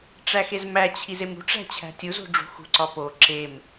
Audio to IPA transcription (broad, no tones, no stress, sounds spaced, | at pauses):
ʈ͡ʂ æ x e z m æ t͡ɕʰ i z e m ṳ ʈ͡ʂ æ̤ t͡ɕʰ æ̤ tʲ u z o̤ ɖ͡ʐ ṳ x ṳ ǀ ɒ p o ǁ e m